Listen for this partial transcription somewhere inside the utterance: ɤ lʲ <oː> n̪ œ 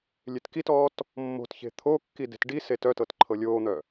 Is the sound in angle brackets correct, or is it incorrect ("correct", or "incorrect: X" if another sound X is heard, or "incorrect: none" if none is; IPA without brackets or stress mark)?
correct